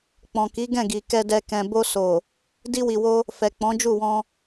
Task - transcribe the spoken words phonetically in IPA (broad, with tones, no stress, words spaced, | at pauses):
k͡pɔ̃˨ki˨˦ɡɛ̃˦˨ɡi˨ kɛ˧dɛ˧ kɛ̃˨bo˧so˨ | di˧wi˨wo˧ | fɛ˨k͡pɔ̃˨˦d͡ʒu˦˨wɔ̃˧